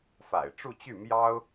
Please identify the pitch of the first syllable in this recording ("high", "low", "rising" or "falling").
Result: low